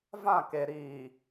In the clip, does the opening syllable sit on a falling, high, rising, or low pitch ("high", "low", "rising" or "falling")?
falling